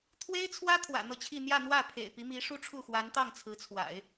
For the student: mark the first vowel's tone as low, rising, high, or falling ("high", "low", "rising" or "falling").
high